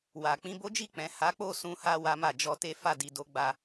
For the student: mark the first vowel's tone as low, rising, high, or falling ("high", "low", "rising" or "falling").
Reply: low